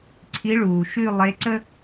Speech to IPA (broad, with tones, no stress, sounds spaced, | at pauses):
ǀʰ i˧˥ ɭ uː˨ ʃ ʉ˥˧ lˠ e˧˥ ǀ ə˥